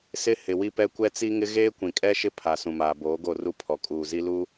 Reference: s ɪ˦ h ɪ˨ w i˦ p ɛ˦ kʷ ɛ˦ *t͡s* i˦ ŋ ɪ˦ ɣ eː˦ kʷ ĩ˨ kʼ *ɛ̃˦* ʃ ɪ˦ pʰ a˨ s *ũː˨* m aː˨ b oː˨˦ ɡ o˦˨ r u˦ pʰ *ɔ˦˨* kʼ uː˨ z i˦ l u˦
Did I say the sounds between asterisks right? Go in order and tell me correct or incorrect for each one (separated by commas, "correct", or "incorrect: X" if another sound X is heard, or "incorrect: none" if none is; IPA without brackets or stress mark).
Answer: correct, incorrect: ɛ˦, incorrect: ũ˨, incorrect: ɔ˨